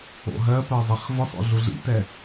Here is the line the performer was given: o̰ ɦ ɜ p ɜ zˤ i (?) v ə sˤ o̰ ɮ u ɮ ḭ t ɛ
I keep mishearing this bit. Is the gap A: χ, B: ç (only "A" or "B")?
A